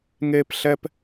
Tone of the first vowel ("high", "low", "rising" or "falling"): high